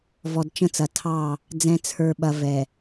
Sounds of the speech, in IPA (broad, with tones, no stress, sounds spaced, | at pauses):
v ɔ˨ d t͡ʃ ə̃˦ t͡s ɐ˨ tʰ ɑ˦˨ | d͡z ɛ̃˨ t͡sʰ ə˞˨ ɓ ɐ˨ v ɛ˨